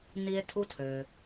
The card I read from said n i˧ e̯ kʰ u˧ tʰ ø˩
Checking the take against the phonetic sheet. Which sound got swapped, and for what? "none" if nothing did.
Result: kʰ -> tʰ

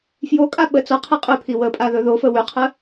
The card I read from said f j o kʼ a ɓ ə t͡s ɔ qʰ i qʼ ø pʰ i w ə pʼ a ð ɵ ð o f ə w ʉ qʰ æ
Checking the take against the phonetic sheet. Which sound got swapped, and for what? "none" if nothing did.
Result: æ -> ə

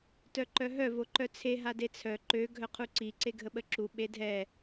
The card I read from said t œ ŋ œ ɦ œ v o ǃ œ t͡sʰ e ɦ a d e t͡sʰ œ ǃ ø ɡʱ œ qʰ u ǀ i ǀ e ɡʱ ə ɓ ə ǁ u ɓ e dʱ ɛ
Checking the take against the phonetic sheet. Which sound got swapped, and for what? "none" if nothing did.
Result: ŋ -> ǃ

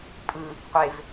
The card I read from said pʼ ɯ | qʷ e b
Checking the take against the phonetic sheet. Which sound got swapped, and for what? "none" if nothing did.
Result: b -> v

